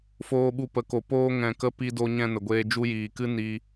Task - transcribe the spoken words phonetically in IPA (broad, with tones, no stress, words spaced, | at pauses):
foː˧ɓu˧pə˨˦ko˨ poː˧ŋɛ̃˨kə˧ pi˧do˧ɲɛ̃˧ nə˨ɡʷeː˧ d͡ʒu˧jiː˨kɨ˦ ni˦